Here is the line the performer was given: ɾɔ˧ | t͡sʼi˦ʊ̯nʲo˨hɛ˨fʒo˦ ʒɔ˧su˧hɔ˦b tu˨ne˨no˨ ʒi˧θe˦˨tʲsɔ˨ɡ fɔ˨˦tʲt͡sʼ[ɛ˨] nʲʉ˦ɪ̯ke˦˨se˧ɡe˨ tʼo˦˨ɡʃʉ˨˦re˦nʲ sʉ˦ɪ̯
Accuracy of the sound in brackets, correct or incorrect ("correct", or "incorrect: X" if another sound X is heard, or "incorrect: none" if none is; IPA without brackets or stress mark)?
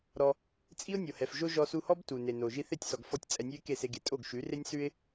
correct